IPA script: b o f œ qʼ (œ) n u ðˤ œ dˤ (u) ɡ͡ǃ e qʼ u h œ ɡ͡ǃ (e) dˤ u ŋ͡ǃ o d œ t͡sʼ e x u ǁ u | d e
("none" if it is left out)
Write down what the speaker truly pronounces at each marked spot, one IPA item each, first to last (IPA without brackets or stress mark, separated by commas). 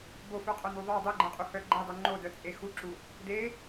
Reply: œ, u, e